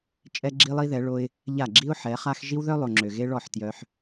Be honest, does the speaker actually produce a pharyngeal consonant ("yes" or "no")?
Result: yes